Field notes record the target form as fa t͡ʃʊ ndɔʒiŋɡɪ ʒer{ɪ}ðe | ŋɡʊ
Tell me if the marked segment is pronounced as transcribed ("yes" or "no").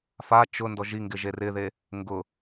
yes